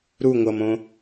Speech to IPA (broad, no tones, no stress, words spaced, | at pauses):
ɾu ŋʷʌmõ